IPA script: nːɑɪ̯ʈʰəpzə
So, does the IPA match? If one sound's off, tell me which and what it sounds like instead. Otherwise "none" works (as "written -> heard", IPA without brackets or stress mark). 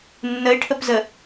ɑ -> ə